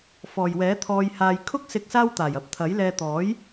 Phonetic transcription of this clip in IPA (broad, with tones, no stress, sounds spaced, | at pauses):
f ɔː˨ j w ɛː˨˥ t̪ʰ ɔː˧ j h aː˧ j kʰ ʊ˥ k̚ s ɪ˧ k̚ s aː˥ w t̪ aː˨˩ j ɐ˨˥ p̚ t̪ʰ ɐ˨˥ j l ɛː˧ t̪ ɔː˨˥ j